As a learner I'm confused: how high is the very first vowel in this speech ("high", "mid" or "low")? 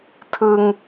high